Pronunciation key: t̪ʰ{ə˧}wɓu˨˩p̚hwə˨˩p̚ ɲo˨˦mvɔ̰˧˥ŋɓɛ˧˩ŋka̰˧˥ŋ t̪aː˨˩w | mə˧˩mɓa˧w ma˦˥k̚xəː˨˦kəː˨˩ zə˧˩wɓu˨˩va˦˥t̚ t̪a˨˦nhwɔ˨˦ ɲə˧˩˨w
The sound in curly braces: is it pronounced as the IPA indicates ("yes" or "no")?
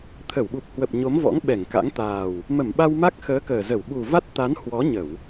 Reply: no